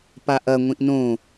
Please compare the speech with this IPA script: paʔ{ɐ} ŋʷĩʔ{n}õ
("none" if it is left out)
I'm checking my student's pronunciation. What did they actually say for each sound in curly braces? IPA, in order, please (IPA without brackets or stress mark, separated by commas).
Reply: ɐ, n